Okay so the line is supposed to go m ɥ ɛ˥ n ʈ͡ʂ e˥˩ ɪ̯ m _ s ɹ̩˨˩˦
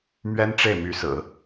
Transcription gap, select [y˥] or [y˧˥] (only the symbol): y˧˥